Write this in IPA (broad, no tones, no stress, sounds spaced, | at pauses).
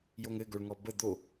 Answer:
j o ŋ ɘ ɡ o ɭ ŋ ɔ b ə d̪ o